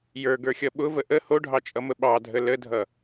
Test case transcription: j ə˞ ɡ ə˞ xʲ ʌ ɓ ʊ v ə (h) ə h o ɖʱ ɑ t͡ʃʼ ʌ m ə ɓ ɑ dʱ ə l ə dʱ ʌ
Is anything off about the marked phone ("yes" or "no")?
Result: yes